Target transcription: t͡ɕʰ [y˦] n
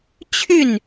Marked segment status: incorrect: y˥˨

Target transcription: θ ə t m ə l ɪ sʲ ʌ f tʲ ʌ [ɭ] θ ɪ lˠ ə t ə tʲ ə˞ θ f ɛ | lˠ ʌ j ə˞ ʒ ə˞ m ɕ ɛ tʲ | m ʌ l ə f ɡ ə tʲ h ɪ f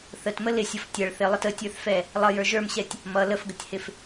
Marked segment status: correct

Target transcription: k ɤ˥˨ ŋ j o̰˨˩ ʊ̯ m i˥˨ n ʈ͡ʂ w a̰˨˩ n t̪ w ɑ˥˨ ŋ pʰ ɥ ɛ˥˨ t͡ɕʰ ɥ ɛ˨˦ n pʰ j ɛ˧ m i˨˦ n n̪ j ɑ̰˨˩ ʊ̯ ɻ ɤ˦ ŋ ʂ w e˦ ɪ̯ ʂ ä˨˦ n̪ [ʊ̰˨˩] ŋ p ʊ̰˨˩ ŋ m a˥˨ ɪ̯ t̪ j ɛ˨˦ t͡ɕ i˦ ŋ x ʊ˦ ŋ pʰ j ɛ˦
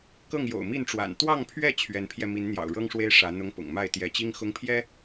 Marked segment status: incorrect: ʊ˦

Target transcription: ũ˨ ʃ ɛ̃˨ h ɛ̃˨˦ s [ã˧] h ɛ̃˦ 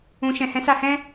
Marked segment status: incorrect: a˧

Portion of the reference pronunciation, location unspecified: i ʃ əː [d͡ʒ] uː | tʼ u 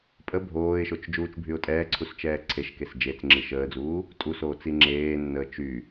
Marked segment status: incorrect: d͡z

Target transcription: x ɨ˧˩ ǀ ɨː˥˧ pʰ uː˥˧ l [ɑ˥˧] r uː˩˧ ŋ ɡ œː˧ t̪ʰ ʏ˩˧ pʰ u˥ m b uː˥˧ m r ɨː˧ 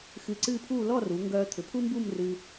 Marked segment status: incorrect: ɔ˥˧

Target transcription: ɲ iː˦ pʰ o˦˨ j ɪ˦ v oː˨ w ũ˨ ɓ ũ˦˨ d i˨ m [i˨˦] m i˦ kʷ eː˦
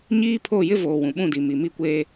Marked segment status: incorrect: i˨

